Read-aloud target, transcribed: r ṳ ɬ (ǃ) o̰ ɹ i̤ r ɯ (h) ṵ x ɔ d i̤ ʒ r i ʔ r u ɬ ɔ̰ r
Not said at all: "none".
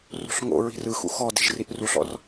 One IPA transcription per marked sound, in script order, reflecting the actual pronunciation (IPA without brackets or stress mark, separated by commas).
ŋ, x